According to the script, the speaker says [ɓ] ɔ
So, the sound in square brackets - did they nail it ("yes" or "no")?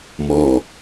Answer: no